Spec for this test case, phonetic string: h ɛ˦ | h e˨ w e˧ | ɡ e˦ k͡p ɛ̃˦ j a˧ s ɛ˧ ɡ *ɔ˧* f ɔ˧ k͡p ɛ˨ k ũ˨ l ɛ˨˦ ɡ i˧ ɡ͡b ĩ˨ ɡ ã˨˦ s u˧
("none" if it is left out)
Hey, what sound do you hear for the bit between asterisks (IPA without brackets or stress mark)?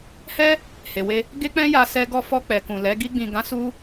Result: ɔ˧